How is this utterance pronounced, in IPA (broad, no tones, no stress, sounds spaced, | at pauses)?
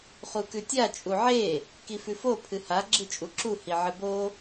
χ u k ʉ tʲ a t͡ʃʼ u ʕ e | k i f ʉ f o pʰ ɨ h a ɡ͡ǁ ɨ t͡ʃʼ u ǁ u h i ʕ ɨ b o